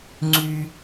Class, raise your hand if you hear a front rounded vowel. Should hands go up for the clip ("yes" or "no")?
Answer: yes